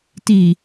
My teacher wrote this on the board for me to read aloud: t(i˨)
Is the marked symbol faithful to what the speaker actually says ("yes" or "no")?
yes